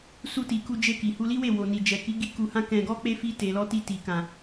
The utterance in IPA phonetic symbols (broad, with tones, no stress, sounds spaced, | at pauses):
s u˧ t i˨ k u˧ d͡ʒ e˧ k i˨ h u˧ l i˦ w e˦˨ w o˨ n i˨ d͡ʒ ɛ˨ k i˨˦ ɡ i˧ k u˧ h ã˦ k ɛ̃˧ ɡ ɔ˦ k͡p e˦ f i˧ t e˨ l ɔ˧ t i˧ t i˨ k ã˨